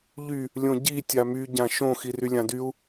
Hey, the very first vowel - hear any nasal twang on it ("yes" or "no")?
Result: no